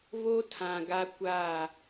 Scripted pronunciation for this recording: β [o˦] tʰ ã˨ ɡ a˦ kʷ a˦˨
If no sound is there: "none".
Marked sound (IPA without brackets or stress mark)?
o˦